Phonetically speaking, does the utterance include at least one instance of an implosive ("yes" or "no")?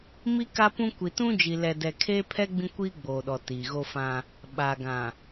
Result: yes